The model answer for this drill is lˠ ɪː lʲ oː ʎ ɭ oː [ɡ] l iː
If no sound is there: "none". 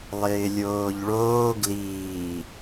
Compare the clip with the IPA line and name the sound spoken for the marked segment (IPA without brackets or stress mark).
ɡ